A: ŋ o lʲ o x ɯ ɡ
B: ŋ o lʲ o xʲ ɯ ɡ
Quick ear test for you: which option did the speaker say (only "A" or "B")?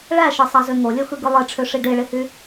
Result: A